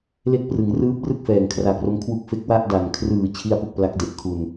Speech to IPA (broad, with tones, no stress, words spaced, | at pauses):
le˥˩k̚ prɯ˩˦ŋrɯː˦˥p̚rɯ˥˩k̚ fɛː˨˩ŋkʰra˨˩k̚ro˦˥m kʰwu˥˩k̚fe˦˥k̚ wa˥˩ʔda˨˩n kʰrɯː˨˩ t͡ɕʰi˥˩a̯pu˥˩k̚pla˦˥k̚ de˨˩ʔkʰu˨˩n